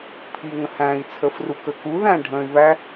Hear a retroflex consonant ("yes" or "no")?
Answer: yes